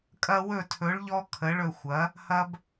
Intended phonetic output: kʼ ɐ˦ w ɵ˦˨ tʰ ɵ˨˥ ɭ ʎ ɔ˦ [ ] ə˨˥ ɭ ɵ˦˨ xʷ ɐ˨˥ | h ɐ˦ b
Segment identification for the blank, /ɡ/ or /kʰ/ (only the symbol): kʰ